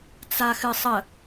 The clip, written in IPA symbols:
t͡s a x ɨ sˤ ə

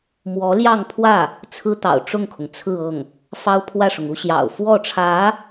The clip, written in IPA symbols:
m w ɔ˧˥ l j ɑ˥˧ ŋ pʰ w ä˥˩ | t͡sʰ ɹ̩˥ t̪ ɑ̰˨˩ ʊ̯ ʈ͡ʂ ʊ˥˩ ŋ kʰ ʊ˩ ŋ t͡sʰ ɹ̩˥˧ ɤ˥˩ ŋ | f ɑ˥ ʊ̯ pʰ w ä˥˩ ʂ ʊ˩ ŋ u˥ ɕ j ɑ̰˨˩ ʊ̯ f w ɔ˥˩ ʈ͡ʂʰ ä˧˥

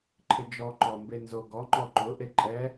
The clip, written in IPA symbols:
ǃʰ ɪ d͡ʒ ɔ ǃ ɔ m b e n z o ɡ ɔ ŋ͡ǃ ɔ ǃ ʊ ʔ e ǃʼ ɛ

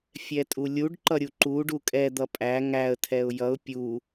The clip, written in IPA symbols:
fʲ ɛ tʼ u lʲ u ɖ ǃ ʌ ɾʲ u ǃ u ɖ u kʼ ɛ d̪ ʌ pʼ æ ŋ æ ə̯ tʰ ɛ ʊ̯ j ʌ ʊ̯ pʲ u

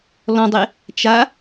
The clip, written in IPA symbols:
l ɔ̃ dˤ e | t͡ʃ a

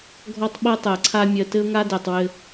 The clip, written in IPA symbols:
ɡʱ ɔ˦ tˤ ɓ ɤ˦ tˤ ɜ˨ ǀʰ a˦ mʲ ɜ˨ t ɘ˦ ʊ̯ ŋ a˦ d ɜ˨ tˤ w ɘ˦

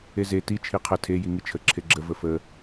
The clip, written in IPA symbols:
e z e t i t͡ʃʰ i qʰ ə tʰ e j i ŋ i t͡ʃʰ ə ǁʰ e ɡ͡ǁ ə v ə f ə

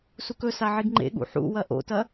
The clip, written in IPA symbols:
s u k ɵ s a ʕ i ɡ ŋ͡ǃ ḛ ɠ ṵ ħ ṵ w ɐ ʔ o̰ t ɐ

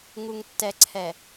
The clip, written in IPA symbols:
ŋ u˨ ŋ tː ɛ˨ ǀʰ ɛ˨

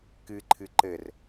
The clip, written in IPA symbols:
k ɨ ǃʰ ɨ ǃ ɘ r

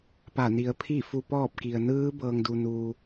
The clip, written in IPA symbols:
p a˧˩ n i˩˧ ə̯ pʰ i˥˨ f u˧ p ɔː˥˨ p̚ k i˩ ə̯ n ɯː˧˥ b ɤː˩ ŋ d u˩ n u˩

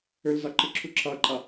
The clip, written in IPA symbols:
ɵ l z a ǃ ɨ ǁʰ u ǁʰ a ǃʼ a

